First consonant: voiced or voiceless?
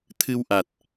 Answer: voiceless